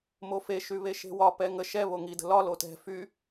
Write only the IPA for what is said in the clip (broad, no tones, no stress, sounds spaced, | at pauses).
m o f e ʃ y β e ʃ e̤ w ɒ p ɛ ŋ ə ʃ ɛ β o ŋ i d ə̤ l ɒ l o t ɛ̤ f y